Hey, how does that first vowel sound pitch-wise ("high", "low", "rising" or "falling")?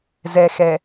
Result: low